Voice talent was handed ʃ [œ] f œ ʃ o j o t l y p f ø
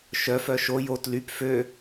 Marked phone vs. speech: correct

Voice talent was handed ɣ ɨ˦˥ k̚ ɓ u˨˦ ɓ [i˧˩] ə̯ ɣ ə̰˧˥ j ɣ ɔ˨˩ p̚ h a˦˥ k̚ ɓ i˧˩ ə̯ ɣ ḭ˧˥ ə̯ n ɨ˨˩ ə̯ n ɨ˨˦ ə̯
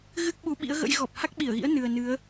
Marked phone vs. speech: incorrect: ḭ˧˥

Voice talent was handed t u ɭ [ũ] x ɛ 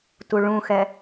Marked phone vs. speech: correct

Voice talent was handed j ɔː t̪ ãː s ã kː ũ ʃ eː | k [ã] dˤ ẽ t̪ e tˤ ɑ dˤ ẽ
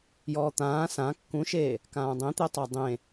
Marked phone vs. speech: incorrect: ãː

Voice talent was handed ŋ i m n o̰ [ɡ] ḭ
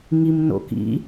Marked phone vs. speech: incorrect: k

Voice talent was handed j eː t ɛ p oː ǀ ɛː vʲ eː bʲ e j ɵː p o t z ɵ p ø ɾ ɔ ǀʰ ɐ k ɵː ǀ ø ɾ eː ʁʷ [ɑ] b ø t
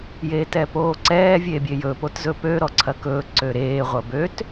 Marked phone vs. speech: incorrect: ɐ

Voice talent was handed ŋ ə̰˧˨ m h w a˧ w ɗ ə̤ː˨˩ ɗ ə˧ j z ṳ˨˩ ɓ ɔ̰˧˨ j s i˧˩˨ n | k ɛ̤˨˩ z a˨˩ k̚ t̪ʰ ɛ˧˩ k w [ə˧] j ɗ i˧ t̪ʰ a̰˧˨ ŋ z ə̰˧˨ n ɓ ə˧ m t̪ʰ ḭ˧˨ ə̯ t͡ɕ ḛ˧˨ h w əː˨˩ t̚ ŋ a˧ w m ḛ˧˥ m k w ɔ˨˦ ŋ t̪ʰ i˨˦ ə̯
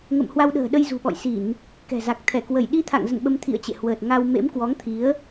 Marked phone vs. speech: incorrect: ə˧˩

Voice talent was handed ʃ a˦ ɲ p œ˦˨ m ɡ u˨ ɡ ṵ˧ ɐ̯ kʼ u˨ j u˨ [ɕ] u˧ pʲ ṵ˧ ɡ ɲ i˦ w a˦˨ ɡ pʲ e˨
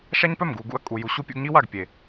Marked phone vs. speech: correct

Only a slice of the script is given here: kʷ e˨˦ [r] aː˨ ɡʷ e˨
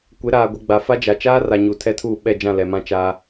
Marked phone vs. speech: incorrect: ɾ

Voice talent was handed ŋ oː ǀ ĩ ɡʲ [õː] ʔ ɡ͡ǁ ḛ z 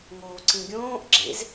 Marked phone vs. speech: correct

